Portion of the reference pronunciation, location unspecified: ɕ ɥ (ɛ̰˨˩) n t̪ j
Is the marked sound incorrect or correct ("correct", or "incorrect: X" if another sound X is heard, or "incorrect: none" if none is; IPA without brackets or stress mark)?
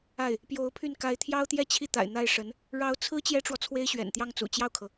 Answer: correct